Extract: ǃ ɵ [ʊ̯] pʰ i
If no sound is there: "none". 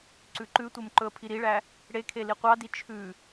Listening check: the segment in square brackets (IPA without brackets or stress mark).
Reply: ə̯